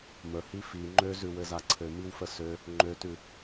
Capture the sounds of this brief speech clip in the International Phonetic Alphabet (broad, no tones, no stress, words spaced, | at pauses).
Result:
məhi fi ŋ͡ǃøzʉwɘza ǀʰɘmiwfə sø | ŋ͡ǃøtʉ